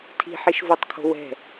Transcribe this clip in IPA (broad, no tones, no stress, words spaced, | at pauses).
tʰi̤ħiʃvotˤkʰo̤ wɛ̤